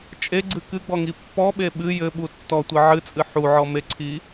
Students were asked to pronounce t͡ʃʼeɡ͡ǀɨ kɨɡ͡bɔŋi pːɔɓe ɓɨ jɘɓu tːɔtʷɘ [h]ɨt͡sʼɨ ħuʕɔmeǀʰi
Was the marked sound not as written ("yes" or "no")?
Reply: yes